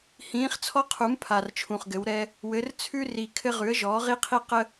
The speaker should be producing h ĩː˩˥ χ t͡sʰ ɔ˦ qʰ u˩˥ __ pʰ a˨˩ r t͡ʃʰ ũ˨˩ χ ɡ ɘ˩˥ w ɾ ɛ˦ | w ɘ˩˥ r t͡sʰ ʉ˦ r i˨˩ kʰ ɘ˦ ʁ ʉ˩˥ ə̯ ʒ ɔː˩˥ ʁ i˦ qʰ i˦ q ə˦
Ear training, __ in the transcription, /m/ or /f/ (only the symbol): m